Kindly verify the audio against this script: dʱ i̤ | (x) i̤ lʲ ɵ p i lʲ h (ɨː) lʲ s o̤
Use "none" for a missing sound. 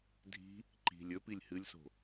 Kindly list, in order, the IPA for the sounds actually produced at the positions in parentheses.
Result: ǃ, ɨ

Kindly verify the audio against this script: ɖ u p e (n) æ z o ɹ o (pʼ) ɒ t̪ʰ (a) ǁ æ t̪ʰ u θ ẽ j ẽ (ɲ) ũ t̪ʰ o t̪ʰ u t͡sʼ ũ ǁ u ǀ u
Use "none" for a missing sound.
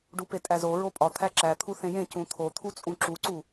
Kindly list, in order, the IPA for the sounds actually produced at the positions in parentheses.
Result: tʼ, pʼ, æ, c

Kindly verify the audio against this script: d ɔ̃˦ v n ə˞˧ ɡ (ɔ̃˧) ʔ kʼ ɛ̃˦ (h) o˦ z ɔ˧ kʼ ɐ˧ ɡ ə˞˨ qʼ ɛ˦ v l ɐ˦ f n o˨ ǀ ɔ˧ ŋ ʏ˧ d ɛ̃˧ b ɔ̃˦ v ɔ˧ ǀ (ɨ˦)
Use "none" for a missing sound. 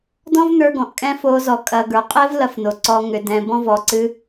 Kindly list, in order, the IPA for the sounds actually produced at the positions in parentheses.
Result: ɔ̃˨, f, ɨ˦

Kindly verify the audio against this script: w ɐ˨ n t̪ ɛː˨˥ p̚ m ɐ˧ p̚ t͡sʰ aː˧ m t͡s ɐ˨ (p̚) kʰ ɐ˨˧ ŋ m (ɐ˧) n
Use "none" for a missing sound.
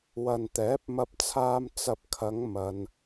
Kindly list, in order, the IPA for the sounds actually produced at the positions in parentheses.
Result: p̚, ɐ˧

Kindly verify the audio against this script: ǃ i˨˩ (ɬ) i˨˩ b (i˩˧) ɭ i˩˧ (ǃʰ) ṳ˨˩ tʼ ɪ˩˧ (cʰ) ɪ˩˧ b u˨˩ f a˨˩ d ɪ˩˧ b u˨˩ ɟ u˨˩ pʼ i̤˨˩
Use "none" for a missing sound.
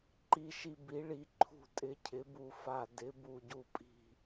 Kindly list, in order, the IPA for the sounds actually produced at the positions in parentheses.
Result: ʃ, i˩˧, ǃʰ, cʰ

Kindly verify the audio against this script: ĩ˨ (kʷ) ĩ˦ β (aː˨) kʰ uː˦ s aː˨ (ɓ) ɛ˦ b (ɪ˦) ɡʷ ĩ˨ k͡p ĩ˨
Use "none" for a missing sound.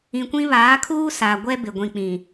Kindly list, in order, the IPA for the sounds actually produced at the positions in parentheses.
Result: kʷ, aː˨˦, ɡʷ, ɪ˨

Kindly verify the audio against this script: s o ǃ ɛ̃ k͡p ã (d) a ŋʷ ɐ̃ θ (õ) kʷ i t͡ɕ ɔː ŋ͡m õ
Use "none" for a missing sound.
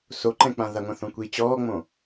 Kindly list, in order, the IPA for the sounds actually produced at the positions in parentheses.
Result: ð, õ

